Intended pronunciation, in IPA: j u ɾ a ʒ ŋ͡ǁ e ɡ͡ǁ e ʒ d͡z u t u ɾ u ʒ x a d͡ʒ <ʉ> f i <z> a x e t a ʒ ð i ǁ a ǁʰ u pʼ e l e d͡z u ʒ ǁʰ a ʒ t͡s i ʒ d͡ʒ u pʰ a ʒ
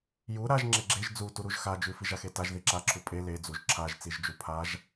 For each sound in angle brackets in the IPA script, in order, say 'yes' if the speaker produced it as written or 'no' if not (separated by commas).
yes, no